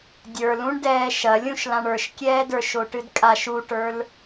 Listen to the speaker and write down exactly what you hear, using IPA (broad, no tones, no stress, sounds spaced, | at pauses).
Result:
dʲ ə˞ l ũ ɳ d ɛː ʃ ɐ lʲ ũ ʃ l ã ɳ ə˞ ʃ kʲ ɛː d ə˞ ʃ o ʈ ɨ d kʼ a ʃ u ʈ ə˞ l